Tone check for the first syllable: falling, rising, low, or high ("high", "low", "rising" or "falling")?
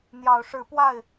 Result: rising